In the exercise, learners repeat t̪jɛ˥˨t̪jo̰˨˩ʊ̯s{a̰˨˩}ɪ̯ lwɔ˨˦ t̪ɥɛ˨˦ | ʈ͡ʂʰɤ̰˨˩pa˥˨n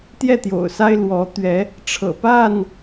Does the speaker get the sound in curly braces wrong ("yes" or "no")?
yes